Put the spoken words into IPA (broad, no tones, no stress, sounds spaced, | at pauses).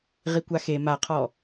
ʁ i kʷ a x e m a qʰ ɔ